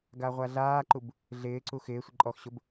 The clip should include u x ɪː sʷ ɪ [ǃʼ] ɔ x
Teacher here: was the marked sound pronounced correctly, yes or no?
yes